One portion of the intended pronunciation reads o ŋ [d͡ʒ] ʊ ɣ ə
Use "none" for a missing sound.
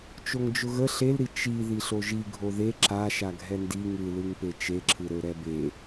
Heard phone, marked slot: d͡ʒ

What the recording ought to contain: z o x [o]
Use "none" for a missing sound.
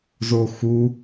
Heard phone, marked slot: u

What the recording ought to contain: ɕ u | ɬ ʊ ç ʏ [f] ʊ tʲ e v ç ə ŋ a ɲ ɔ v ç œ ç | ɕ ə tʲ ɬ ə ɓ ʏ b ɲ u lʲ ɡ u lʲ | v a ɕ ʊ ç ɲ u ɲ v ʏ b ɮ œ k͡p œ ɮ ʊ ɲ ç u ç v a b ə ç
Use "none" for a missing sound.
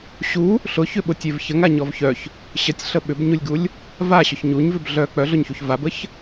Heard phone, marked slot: ɓ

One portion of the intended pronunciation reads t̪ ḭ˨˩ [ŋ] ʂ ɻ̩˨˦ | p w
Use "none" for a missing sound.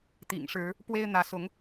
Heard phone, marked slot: ŋ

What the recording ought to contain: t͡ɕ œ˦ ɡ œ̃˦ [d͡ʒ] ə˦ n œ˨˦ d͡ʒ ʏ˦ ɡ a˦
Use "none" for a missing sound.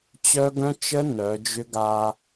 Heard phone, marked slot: t͡ʃ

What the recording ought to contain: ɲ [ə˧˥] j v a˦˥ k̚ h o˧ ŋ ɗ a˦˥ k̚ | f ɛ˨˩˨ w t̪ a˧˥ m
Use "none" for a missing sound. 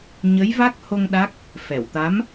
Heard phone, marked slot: ə˧˥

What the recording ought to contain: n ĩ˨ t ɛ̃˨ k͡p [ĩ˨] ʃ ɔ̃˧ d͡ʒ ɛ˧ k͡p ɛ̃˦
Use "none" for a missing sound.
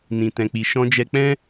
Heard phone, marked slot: i˨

